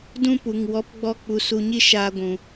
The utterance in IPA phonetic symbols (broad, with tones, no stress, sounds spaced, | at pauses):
d ũ˦ p u˨ ŋ w ɔ˨˦ p ɡ͡b ɔ˧ k͡p u˨ s u˨ ɲ i˧ ʃ aː˧ ɡʷ ũ˨